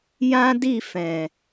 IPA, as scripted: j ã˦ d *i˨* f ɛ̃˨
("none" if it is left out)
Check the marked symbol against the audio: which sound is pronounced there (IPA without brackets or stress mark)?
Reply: i˦˨